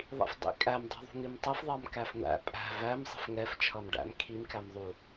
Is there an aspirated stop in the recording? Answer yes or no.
yes